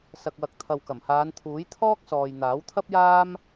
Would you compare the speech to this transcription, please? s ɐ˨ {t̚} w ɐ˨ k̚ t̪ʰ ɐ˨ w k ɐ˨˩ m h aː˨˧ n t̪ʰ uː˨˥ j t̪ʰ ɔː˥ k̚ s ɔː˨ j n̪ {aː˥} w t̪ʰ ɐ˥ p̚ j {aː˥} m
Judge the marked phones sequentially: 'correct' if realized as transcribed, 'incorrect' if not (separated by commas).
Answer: incorrect, incorrect, correct